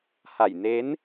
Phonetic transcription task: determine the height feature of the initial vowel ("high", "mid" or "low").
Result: low